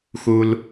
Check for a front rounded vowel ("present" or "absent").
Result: absent